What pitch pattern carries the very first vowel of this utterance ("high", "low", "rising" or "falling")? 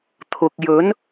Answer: low